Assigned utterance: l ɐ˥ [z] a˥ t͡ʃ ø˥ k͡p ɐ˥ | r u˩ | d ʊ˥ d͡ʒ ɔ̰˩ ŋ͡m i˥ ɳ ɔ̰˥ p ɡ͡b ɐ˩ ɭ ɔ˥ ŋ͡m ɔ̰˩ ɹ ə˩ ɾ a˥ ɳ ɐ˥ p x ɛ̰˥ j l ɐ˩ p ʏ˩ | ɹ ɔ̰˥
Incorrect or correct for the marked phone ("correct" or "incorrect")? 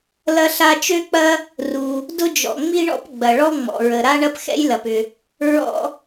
incorrect